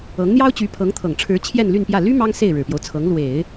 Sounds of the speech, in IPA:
ɤ˧˥ ŋ n̪ j ɑ˥ ʊ̯ t͡ɕ y˧˥ pʰ ɤ˧˥ ŋ t̪ʰ ɤ˨˩ ŋ ʈ͡ʂʰ ɻ̩˧˥ t͡ɕʰ j ɛ˥˧ n l y˥˧ n p j ä˥˩ l y˥ m ɑ˥ ŋ s e˥˩ ɪ̯ ɻ ɻ̩˨˩ p j o˦ ʊ̯ t͡sʰ ɤ˧˥ ŋ l w e˨˩˦ ɪ̯

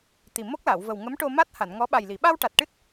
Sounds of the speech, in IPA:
t̪ i˨˩ m o˦˥ k̚ l a˨˩˨ w v ə˨˩ w ŋ ə˧˥ m ʈ o˧ m a˦˥ t̚ h a˨˩˨ n ŋ ɔ˧˥ ɓ a˨˩ j l i˨˩˨ ɓ a˧ w ʈ a˨˩ t̚ ʈ ɨ˦˥ t̚

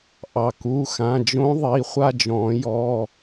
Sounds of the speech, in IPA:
ʔ ɑ˩ k u˩˧˩ x ã˩˧˩ d͡ʒ õ˦˥ ðˤ i˩˧˩ χʷ a˥˧ d͡ʒ ɔ̃˨˩˦ j ɔ˩˧˩

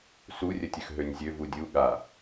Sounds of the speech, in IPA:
s u rʲ ə tʲ ø x ɦ ø nʲ zʲ ø v u dʲ u ɠ a

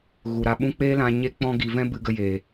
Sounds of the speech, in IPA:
ɣ u˨ ɾ a˧ ɓ ũ˦ k͡p eː˦ l ã˧ ɲ e˦ k͡p ɔ̃˦ ɡ i˧ v ɛ̃˦ b ɨ˧ ɡ ə˧ j eː˨

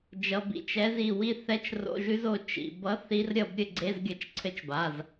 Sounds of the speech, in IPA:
d͡ʒ ʌ˩˧˩ b ḭ˩˧˩ t͡ʃ ɛ˧˥ z i˩˧˩ w i˦˨ θ ɛ˧˥˧ t͡ʃ r o̰˧˥˧ ʒ ʉ˧˥ z o˦˨ t͡ʃ ḭ˩˧˩ b ʌ˧˥ θ i˧˥ r ɾʲ ʌ˦˨ b ɾʲ ɘ˦˨ ɡ͡ǀ e˧˥˧ z ɡʲ ʌ˧˥ t͡ʃ ǀʰ ɘ˧˥ t͡ʃ b a˩˧˩ z

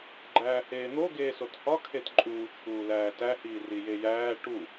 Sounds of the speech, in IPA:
ɡ͡ǃ æː h eː n̪ o ɡ eː s o t h ɒ kʰ e t ǃʼ uː t͡ʃʰ uː l æː t æ h iː r i j e j æː ʈ u

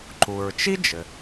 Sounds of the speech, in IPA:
ǃ u˩ ɹ t͡ʃ i˥ d͡ʒ ɘ˩

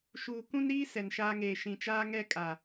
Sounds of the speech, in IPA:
ʃ uː˨ k ũ˦ n ɾ iː˦ s ɛ˨ n ʃ aː˦ ŋ eː˨ ʃ ĩ˨ t͡ʃ aː˦ ŋ ɛ˦ kʼ a˨

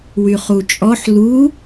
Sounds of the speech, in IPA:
w y χ u t͡ʃʼ ɔ ħ l u

